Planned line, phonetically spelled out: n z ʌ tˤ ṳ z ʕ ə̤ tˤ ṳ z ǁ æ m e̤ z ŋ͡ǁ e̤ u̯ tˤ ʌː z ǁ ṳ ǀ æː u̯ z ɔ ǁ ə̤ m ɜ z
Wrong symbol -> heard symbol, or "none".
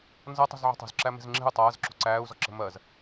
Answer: none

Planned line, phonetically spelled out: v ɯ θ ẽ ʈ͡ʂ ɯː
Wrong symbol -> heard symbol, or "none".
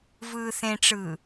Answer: ɯ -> ɯː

